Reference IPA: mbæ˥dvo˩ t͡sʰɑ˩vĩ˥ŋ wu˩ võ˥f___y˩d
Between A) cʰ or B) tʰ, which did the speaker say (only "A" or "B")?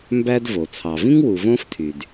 B